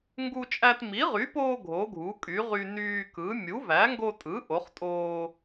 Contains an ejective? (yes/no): yes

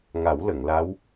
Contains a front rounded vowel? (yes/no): no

